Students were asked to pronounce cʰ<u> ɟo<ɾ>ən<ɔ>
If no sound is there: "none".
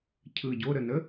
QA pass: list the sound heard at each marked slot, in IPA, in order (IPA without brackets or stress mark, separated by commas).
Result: ɯ, ɾ, ə